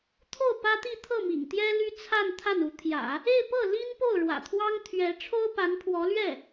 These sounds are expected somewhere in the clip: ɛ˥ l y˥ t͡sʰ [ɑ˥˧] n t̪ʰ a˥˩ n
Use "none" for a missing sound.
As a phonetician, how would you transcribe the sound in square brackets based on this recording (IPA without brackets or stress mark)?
a˥˧